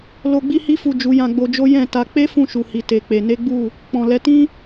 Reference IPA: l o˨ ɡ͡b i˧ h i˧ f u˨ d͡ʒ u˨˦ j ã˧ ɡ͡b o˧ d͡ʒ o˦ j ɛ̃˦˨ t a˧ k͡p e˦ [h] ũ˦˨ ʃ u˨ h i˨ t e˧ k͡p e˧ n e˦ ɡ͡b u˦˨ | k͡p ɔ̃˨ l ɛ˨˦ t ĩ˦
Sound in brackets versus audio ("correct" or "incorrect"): incorrect